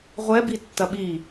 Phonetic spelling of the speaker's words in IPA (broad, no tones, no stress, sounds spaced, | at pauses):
ʁʷ ɛ b i tː ɐ ɓ i